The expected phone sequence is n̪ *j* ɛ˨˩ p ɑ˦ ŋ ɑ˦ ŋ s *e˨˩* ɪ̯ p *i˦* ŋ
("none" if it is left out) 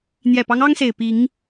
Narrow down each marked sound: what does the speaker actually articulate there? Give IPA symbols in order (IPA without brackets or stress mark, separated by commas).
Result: j, e˨˩, i˨˦